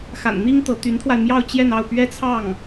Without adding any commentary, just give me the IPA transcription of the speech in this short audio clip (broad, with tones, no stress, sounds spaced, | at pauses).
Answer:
x a̰˨˩ n n̪ i˥ ŋ t̪ ɤ˧˥ t̪ y˧˥ n t̪ʰ w a˧ ɪ̯ m j ɑ˥˧ ʊ̯ t͡ɕ j ɛ˥˧ n ɑ˥˩ ʊ̯ p ɥ ɛ˥ t͡sʰ ɑ˥˩ ŋ